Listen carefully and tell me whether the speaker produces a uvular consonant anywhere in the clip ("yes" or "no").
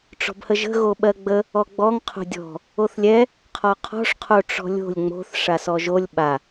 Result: yes